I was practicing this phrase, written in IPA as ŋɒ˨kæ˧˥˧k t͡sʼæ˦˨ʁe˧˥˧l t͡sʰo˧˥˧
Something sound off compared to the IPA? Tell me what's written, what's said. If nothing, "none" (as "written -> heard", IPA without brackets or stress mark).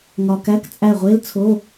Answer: ʁ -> ʁʷ